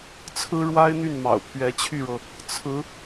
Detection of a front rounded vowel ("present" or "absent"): present